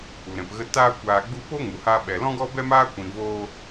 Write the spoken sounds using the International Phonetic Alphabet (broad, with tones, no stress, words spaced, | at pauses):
u˨ɾɛ̃˨pɣə˧taː˦ kʷaː˧ɡ͡bu˦ po˦ŋu˨ ha˦ɓɛ˧ lɔ̃˦ɡɔ˦bɛ˦maː˦ kʷĩ˧voː˦